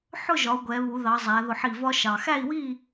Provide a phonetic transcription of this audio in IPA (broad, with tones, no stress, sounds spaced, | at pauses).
ħ ʊ˥˨ ʒ ɒ˩˧ u̯ ɡʷ ɛ˩˧ β u˩˧ ð ɑ˩˧ zˤ æ˩˧ ð ʊ˧˩ ħ i˧˩ v ɒ˦ ʃ ɑ˩ x æ˥˨ i̯ w i˥˨